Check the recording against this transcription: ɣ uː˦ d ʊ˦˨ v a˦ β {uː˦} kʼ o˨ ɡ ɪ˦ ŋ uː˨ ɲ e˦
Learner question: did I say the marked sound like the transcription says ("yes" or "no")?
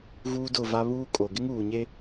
yes